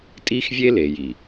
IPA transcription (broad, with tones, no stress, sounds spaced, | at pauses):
tʼ i˦ x vʲ e˦ l e˨ j i˨